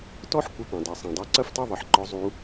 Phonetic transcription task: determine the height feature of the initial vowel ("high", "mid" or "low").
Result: mid